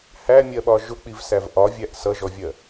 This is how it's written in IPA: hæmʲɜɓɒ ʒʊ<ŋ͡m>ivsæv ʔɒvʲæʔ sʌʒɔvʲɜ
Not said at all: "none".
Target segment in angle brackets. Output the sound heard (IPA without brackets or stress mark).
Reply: k͡p